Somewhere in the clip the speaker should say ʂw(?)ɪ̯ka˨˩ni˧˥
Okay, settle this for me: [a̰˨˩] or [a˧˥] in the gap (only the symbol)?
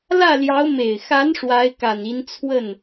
a˧˥